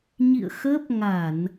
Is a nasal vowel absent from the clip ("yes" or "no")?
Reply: yes